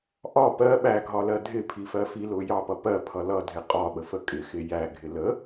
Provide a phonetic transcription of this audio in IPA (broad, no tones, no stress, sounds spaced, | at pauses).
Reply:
ʔ ɒ p ɜ ɓ æ ɡʱ ɒ l ɜ dʱ ɪ pʰ i f ɜ f i l ʊ j ɑ p ʌ p ɜ pʰ ʌ l ʌ dʱ ɪ qʼ ɒ ɓ ə f ə kʼ ɪ x ɪ j æ ɡʱ ɪ l ə